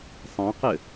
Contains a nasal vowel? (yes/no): yes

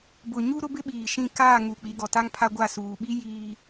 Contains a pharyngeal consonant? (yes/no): no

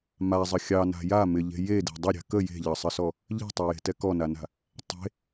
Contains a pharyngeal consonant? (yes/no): no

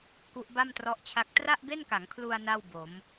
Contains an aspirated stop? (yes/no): yes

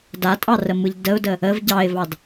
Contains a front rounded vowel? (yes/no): no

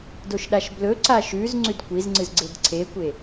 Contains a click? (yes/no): yes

